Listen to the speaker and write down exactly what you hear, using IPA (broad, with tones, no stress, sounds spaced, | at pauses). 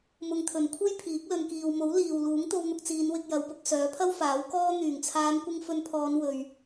m ʊ˧ ŋ t̪ʰ ɵ˨ n kʷʰ e˥ j pʰ iː˨˥ k̚ l ɵ˨ n k iː˨ w m o˨˥ w l iː˨ w l uː˨˥ ŋ t̪ o˧ w n̪ ʊ˧ k̚ t͡s iː˨˧ n w ɪ˨ k̚ j ɐ˨˧ w p ʊ˨˥ k̚ s œː˨˥ pʰ ɐ˥ w f aː˨˥ w k ɔː˥ n̪ yː˨˩ ŋ t͡sʰ aː˨˧ n kʷ ɪ˧ ŋ f ɵ˧ n pʰ ɔː˨˧ n w ɵ˨ ɥ